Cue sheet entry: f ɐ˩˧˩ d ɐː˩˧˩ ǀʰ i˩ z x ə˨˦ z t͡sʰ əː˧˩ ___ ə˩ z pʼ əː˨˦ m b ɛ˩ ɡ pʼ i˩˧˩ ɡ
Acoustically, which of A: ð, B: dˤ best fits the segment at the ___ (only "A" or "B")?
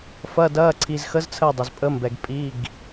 B